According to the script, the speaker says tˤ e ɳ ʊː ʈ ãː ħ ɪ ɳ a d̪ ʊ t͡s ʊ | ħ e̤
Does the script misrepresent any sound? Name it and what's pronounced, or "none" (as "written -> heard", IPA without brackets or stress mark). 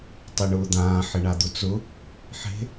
ʈ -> d̪